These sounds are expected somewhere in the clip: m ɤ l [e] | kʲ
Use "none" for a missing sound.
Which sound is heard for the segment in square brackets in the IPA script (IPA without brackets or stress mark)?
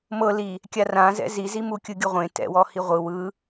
i